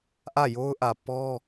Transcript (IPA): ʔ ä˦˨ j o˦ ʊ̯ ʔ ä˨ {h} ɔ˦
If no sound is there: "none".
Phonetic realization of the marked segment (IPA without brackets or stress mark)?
p